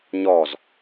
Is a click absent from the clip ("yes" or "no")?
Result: yes